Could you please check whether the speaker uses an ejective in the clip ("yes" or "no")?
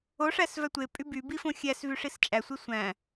yes